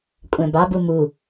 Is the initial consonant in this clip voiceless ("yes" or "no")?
yes